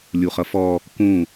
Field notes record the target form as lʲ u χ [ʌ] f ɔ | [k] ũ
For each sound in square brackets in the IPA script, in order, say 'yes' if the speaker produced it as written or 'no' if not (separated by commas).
yes, yes